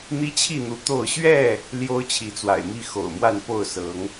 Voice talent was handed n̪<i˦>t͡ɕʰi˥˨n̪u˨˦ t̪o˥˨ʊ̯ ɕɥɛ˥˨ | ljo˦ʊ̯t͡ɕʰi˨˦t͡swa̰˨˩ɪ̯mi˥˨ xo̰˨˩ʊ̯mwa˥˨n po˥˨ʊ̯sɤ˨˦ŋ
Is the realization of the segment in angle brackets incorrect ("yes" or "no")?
no